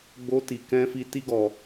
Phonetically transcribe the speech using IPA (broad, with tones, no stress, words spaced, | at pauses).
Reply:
ɡ͡bo˦ti˧ kɛ̃˦fi˦ ti˦ɡɔ˧